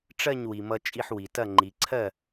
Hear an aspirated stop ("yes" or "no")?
yes